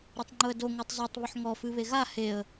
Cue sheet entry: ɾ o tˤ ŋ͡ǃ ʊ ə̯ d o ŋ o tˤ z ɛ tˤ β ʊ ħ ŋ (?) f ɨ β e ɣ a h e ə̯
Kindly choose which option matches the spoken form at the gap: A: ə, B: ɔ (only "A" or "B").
B